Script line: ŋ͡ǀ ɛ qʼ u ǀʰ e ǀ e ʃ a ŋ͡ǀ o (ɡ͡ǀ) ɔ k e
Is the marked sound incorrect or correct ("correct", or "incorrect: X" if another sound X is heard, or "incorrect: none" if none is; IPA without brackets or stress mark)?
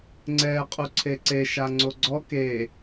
correct